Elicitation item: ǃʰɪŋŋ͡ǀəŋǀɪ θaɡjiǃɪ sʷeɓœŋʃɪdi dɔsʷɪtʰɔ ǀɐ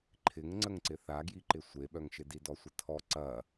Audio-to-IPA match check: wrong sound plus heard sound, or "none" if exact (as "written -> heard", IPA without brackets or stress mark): none